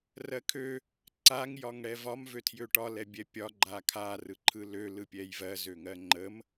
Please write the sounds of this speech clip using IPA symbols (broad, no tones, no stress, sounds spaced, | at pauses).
r ɜ kʰ ø | ǀ a ŋ j ɒ ŋ ɽ ɛ v ɒ m v ø tʰ j ø ʈ ɒ l ɛ bʲ ɛ pʲ ɒ ɡ͡ǃ a kʰ a r ɯ ǃʰ ɯ l ø l ɯ pʲ ɛ j v ɜ z ø ŋ ɜ ŋ͡ǃ ə m